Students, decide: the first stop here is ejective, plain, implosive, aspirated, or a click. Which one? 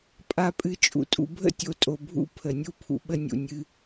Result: ejective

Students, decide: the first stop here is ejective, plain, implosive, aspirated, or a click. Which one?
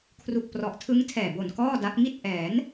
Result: aspirated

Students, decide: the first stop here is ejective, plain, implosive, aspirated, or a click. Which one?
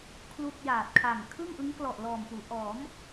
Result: aspirated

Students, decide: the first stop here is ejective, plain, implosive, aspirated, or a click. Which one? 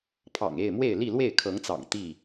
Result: aspirated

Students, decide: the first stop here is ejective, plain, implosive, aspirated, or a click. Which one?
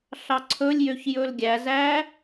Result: click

